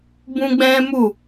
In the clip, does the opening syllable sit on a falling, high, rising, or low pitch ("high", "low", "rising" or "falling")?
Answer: high